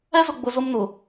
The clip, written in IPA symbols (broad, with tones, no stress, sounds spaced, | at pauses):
ɛ˦ z ʊ˨ ɡ͡b ʊ˨ z ʊ˦ m n ʊ˨